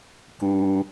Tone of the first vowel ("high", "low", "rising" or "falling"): low